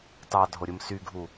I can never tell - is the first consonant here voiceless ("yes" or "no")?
yes